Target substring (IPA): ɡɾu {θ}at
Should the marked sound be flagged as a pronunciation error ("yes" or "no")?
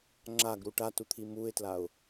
yes